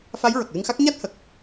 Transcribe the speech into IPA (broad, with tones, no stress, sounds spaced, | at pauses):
f a˧˥ j ɹ ə˨˩ k̚ l ɨ˧ ŋ x a˦˥ k̚ ɲ a˦˥ t̚ h ə˨˩ k̚